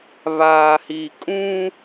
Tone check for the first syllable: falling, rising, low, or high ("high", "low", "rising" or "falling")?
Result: low